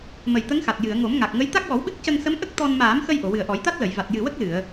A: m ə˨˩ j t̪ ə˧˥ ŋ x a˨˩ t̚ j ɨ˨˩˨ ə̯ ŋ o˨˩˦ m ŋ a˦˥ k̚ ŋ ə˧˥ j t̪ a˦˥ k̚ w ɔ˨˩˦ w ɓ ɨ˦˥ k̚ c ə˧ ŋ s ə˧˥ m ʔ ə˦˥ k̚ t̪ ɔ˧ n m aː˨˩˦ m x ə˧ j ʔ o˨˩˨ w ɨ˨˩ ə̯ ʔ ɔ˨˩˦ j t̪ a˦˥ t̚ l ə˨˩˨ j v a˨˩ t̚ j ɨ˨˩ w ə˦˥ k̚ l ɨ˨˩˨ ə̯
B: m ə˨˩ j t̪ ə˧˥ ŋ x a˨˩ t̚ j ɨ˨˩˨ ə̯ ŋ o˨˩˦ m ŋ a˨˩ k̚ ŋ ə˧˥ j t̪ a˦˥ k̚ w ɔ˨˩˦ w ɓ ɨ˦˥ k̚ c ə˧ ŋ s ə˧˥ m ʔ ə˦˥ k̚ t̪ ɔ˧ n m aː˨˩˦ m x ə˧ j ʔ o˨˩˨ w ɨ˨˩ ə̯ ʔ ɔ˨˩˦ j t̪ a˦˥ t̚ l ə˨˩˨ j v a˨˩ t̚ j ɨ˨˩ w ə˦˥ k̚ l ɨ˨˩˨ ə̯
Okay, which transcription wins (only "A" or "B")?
B